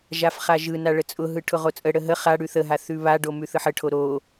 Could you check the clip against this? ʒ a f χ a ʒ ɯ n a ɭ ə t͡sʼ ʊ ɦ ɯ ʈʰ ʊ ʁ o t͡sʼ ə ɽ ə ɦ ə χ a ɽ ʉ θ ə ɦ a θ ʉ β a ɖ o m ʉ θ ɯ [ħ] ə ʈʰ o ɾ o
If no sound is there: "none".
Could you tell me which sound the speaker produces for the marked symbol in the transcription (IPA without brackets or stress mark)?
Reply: ħ